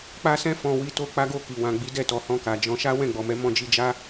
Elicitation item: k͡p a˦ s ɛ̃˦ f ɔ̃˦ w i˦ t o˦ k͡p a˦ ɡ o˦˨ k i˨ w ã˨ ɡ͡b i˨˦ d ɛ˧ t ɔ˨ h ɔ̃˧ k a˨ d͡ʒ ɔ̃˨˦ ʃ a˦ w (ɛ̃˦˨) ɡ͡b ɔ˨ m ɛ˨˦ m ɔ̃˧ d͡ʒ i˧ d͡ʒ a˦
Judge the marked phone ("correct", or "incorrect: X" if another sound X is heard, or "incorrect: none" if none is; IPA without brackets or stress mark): correct